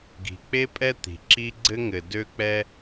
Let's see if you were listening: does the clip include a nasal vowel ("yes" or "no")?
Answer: no